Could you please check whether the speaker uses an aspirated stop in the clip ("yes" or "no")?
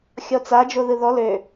no